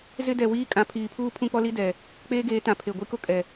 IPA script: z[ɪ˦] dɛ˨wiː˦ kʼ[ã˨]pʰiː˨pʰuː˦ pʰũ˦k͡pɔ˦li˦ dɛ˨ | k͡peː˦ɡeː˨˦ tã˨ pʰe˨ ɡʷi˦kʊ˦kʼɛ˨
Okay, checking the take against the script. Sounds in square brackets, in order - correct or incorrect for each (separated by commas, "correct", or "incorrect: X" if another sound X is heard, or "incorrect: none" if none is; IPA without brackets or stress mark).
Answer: correct, correct